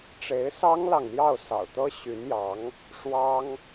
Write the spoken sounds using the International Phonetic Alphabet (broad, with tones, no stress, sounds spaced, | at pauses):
ʈ͡ʂ e˧˥ ɪ̯ s ɑ˥ ŋ l ɑ˨ ŋ l j ɑ˥˩ ʊ̯ s ɑ̰˨˩ ʊ̯ t̪ ɤ˥ ɕ y˧˥ n j ɑ˧˥ ŋ | ʂ w ɑ˥ ŋ